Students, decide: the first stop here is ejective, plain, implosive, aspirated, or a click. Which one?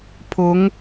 aspirated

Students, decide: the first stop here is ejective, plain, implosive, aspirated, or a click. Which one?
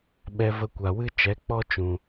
implosive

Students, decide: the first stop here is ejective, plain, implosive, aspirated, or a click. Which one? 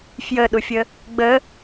implosive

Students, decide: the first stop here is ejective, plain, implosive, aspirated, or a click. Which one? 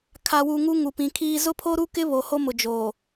aspirated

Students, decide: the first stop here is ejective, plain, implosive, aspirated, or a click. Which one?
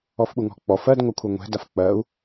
implosive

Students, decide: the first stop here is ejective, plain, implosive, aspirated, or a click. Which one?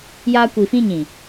plain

